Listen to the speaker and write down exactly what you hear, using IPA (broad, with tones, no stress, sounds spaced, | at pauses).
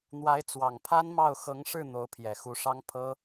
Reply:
n̪ w a˧˥ ɪ̯ t͡s w ɑ˨˩ ŋ pʰ a˥ n m ɑ˥˩ ʊ̯ x ɤ˧˥ ŋ ʂ ɻ̩˥˩ n̪ o˧˥ ʊ̯ pʰ j ɛ˨˩ x u˧˥ ʂ ɑ˥ ŋ pʰ ɤ˥